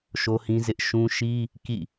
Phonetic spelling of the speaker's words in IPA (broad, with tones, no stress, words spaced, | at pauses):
ʃo˦hĩ˦zɪ˦ʔ ʃũ˦ ʃi˦ | kḭ˦˨